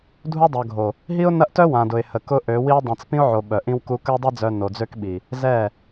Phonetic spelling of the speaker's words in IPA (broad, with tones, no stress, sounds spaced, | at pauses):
dʱ u˦ dˤ œ˨ ɡʱ o˨ | ɦ i˦ ʊ̯ n ɐ˦ ʔ t œ˦ w ã˨ d ʊ˨ ɪ̯ h ə˨ k ʊ˦ ʔ ø˨˦ w i˦ ʊ̯ dˤ ĩ˨ t͡s p ĩ˦ ʊ̯ ʕ o˨ ɓ œ˨ ʔ ĩ˦ w k u˦ k ə˦ w dˤ i˦ d͡z œ˨ n o˨ d͡z ø˦ k ɓ i˨ | z ɛ˦˨